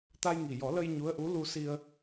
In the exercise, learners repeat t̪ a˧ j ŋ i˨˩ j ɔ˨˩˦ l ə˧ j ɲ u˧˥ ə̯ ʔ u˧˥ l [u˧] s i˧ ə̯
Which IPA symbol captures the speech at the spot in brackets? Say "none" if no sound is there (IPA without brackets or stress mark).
u˧